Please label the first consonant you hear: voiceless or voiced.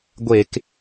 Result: voiced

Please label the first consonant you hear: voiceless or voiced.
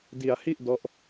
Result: voiced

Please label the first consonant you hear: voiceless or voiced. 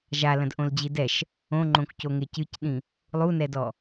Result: voiced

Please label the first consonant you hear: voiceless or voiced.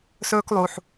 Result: voiceless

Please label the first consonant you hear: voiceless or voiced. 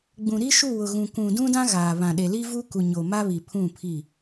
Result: voiced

